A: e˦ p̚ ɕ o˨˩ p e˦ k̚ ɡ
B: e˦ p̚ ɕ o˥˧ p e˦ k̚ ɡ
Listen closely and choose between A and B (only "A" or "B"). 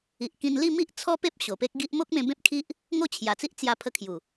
A